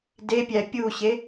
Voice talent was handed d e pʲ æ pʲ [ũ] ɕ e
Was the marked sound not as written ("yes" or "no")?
yes